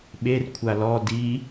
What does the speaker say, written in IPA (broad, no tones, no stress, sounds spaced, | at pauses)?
ɓ e r kʷʰ a l ɔ d i